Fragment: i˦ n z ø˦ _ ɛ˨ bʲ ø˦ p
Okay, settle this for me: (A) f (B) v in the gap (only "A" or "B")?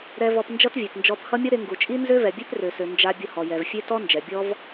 B